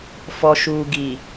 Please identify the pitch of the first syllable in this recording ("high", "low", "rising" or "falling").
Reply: low